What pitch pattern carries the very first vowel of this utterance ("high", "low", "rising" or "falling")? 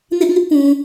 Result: high